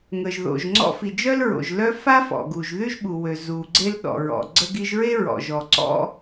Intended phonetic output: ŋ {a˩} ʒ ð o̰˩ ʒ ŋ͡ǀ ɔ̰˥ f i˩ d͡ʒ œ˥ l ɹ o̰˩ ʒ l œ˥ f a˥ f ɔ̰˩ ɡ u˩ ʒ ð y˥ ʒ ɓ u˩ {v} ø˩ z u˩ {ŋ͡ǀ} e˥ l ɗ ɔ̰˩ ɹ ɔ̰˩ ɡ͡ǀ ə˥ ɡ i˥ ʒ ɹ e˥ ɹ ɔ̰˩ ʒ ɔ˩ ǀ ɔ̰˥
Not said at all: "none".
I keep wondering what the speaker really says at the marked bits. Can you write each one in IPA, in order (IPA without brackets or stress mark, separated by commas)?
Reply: ə˩, w, ɡ͡ǀ